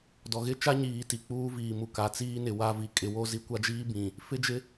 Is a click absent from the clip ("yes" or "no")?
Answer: yes